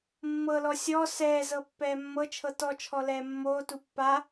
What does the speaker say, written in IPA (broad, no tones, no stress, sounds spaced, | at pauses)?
mː ɤ l ɔ sʲ ɔ s ɛː z ɤ pː ɛː mː ɤ t͡ʃʰ ɤ t ɔ t͡ʃʰ ɔ l ɛː mː oː t u pː a